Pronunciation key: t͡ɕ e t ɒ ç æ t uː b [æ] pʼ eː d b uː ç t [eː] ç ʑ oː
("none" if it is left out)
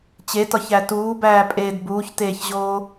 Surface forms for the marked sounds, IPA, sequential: æː, eː

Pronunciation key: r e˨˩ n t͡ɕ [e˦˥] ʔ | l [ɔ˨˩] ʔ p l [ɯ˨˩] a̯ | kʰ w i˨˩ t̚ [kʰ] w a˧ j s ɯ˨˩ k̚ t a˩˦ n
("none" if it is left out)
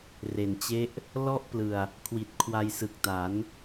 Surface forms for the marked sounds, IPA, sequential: e˦˥, ɔ˦˥, ɯ˨˩, kʰ

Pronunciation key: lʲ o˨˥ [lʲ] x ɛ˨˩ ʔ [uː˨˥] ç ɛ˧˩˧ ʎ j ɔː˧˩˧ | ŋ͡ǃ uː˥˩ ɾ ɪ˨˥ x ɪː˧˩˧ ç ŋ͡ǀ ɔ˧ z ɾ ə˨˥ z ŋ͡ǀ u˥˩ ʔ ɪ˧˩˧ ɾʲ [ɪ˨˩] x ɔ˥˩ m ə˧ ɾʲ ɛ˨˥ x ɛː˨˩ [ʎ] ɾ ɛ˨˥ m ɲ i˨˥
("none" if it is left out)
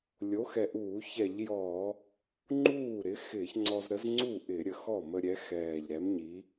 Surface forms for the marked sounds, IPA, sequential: none, uː˧˩˧, ə˨˩, ʎ

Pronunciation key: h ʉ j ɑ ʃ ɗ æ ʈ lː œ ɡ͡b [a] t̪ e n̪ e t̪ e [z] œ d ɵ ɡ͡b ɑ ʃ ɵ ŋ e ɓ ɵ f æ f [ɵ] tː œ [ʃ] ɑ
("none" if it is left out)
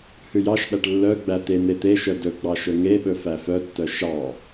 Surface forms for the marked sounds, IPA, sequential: æ, ʃ, œ, ʃ

